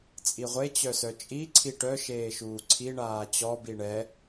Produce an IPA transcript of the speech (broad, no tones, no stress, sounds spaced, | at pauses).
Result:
t͡sʼ i ʁʷ e t͡ɕ œ s œ t͡ʃʼ i ǀʰ i ʈ œ ʃ eː ʃ uː ǀʰ i ɳ aː t͡ɕ ɔ b i ɳ ɛ